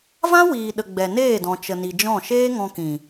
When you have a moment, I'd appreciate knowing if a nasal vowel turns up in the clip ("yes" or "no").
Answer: yes